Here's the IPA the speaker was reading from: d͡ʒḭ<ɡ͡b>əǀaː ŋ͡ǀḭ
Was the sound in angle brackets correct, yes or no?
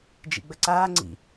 yes